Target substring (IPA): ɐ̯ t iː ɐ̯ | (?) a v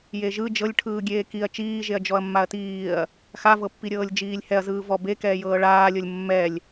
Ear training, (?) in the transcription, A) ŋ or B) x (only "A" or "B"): B